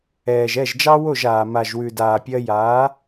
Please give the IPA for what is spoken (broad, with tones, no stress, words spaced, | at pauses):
ɛː˨ʒɛ˦˨ʒd͡ʒɑ˦ wo˦˨ʒaː˨ ma˨ʒwʉ˨daː˨ pʲɜ˧jaː˨˦